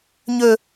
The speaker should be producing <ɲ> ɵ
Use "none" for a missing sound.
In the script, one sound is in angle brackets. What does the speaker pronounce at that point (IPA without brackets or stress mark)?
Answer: ɲ